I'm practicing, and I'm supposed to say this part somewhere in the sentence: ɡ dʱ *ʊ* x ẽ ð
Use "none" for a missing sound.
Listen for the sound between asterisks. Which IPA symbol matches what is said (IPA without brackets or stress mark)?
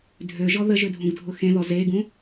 ʊ